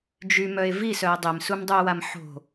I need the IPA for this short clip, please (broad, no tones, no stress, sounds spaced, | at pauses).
d͡ʒ y m œ e̯ v i s œ e̯ dˤ e m s u m dˤ u o̯ w a m ħ o̤